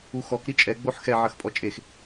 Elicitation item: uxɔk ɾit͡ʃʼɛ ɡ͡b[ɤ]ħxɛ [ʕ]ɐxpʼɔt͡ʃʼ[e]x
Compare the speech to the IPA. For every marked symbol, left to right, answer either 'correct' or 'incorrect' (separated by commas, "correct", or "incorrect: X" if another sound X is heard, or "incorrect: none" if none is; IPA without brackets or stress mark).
incorrect: o, correct, correct